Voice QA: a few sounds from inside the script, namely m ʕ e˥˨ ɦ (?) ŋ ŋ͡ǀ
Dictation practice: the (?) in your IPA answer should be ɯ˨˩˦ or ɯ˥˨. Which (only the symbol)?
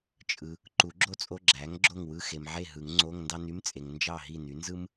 ɯ˨˩˦